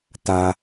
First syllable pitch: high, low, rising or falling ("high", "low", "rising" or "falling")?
low